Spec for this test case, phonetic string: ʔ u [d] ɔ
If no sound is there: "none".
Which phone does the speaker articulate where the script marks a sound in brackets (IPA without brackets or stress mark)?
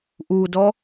d